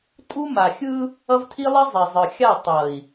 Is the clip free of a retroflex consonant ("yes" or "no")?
yes